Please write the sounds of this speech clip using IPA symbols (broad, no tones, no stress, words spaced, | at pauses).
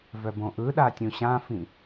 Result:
vœbõʔɯɗa tʲũɕãfĩ